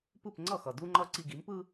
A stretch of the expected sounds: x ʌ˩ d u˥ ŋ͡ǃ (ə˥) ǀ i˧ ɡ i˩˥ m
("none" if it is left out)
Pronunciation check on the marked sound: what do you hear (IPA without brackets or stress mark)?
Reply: ʌ˥